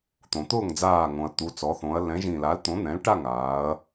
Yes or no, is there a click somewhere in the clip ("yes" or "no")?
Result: no